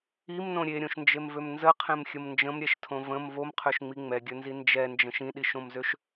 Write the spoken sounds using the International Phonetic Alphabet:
i m n õ ɾʲ e ɾʲ õ ʃ n d͡ʒ e m v ø m n z ə qʰ ẽ m xʲ ə m n d͡ʒ ə̃ m ɾʲ ɛ ʃ tʰ õ v ə̃ m v o m qʰ ø ʃ ŋ͡m i ŋ͡m ɛ ɡʲ ɵ n z i n d͡ʒ ɛ n d͡ʒ ə̃ ʃ ĩ ɗ i ʃ õ m z ø ʃ

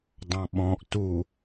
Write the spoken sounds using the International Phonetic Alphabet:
dˤ ɑ̃ ɓ ɔ̃ ʔ t u

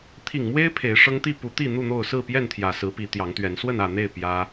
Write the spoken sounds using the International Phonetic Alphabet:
t̪ʰ i˨˩ ŋ m w e˦ ɪ̯ pʰ e˨˦ ɪ̯ ʂ ɤ˦ ŋ t̪ i˥˨ p u˨˦ t̪ i˥˨ n̪ u˥˨ n̪ o˥˨ ʊ̯ s ɹ̩˥˨ p j ɛ˥˨ n t̪ʰ j ä˨˩ s ɹ̩˨˦ p i˨˦ t̪ j ɑ˨˦ ŋ t̪ ɥ ɛ˨˦ n s w ə˥˨ n ä˥˨ n̪ e˥˨ ɪ̯ p j ä˦

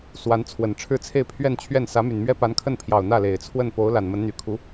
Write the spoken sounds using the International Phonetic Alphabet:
s w a˧˥ n t͡sʰ w ə˨˩ n ʈ͡ʂʰ ɻ̩˥˧ t͡sʰ e˥˧ ɪ̯ pʰ ɥ ɛ˥˧ n t͡ɕʰ ɥ ɛ˥˩ n s ä˧˥ m y˨˩ n m ɥ ɛ˥ p a˧˥ n kʰ ə˥˩ n pʰ j ɑ˨˩ ʊ̯ n̪ ä˥˩ l e˨˩ ɪ̯ t͡sʰ w ə˥˩ n p o˧˥ ʊ̯ l a˨˩ n m ə˧˥ n n̪ y˨˩ kʰ u˧˥

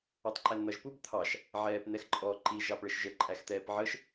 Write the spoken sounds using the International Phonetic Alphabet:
ɑ tˤ ǃ æ n n̪ ʌ ʒ p u b t̪ʰ ɑ ʃ | ʕ ɛː p n̪ ɛ x ǃʼ ɔ ǃ i ʒ ɑ p ɭ ə ʃ ʒ ə ǃʼ æ x t̪ ɛː p ʕ ə ʃ

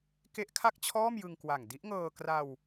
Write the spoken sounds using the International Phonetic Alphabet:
k e˦˥ ʔ kʰ a˥˩ k̚ t͡ɕʰ ɔː˥˩ m j ɯ˧ ŋ k w a˨˩ ŋ d i˦˥ ʔ ŋ ɤː˧ k r a˧ w

